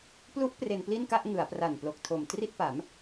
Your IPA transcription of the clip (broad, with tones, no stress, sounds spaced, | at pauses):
p l u˦˥ ʔ p r e˧ n p l i˥˩ n k a˥˩ ʔ ŋ ɯ˩˦ a̯ p r a˨˩ n p l o˨˩ k̚ tʰ o˨˩ m t r i˥˩ t̚ p a˩˦ m